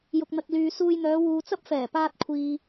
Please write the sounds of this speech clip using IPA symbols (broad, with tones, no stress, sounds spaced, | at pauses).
j ʊ˨ k̚ n̪ ɐ˨ k̚ l yː˨ s uː˧ j n̪ œː˨˧ w uː˨ t͡s ɐ˥ p̚ f ɛː˨˩ p aː˧ t̚ kʷʰ iː˨